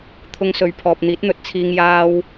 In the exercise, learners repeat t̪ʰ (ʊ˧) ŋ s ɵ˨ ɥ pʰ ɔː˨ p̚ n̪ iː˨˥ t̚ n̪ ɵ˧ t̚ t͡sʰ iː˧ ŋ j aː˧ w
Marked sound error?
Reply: no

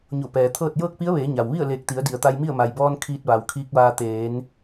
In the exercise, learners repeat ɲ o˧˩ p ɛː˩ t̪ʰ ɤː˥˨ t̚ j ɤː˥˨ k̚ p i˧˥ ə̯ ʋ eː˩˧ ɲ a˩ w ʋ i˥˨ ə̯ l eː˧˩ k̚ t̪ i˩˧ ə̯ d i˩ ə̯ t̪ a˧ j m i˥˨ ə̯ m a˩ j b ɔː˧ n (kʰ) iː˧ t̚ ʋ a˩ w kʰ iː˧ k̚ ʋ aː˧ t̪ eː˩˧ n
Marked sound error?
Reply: no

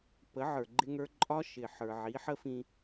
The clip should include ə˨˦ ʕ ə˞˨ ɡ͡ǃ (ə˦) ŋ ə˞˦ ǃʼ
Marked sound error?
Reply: yes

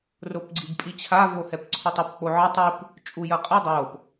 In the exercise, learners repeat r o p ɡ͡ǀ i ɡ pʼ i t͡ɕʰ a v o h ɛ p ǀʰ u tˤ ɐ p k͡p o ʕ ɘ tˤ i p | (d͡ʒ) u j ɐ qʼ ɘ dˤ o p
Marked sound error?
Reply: yes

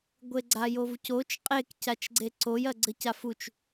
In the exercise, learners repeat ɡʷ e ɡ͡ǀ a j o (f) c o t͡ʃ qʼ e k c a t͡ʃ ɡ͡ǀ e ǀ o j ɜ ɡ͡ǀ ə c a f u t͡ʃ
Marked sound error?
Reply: yes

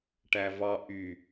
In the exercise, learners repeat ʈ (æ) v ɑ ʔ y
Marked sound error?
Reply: no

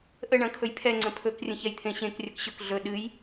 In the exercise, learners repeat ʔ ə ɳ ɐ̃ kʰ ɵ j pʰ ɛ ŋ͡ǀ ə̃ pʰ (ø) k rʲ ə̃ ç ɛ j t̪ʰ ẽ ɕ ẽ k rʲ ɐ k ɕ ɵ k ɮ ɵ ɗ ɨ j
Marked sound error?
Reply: yes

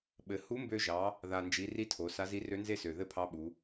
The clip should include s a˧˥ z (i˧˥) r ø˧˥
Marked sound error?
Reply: no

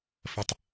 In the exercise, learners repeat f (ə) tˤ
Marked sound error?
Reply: no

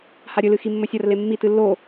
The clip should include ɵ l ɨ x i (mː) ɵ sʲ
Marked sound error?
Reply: no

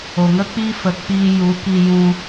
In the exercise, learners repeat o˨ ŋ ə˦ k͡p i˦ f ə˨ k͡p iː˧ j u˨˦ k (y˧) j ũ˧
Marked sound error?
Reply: yes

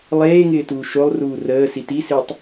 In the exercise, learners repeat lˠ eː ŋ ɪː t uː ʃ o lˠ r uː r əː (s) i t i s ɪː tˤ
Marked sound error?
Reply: no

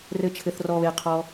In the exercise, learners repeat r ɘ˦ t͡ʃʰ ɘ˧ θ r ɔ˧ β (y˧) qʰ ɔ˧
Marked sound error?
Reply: yes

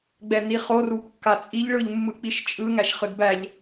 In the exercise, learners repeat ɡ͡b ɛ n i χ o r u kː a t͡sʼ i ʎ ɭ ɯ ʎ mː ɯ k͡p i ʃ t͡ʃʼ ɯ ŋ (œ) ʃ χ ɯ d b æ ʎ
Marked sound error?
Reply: yes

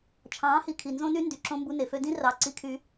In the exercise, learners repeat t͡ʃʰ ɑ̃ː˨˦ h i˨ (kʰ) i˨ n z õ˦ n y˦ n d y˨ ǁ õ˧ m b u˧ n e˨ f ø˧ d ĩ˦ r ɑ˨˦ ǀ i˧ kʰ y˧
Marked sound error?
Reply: no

